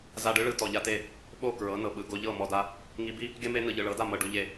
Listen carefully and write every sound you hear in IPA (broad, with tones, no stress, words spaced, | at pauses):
za˧ɖɯ˦ɭɯ˧ tɔ˨ʎa˦te˦˨ | ɓo˦˨ kɹɤ˨˦nɤ˨ɓɯ˨ ɡo˧ʎɤ˦˨ mɔ˧da˧ | ŋi˧bi˦ | ɡe˦me˦ nɯ˨ʎɯ˨ɭɤ˨˦da˦˨ mɤ˨ ɖu˧ʎe˧